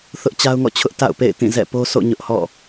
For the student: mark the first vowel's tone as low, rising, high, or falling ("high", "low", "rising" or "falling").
high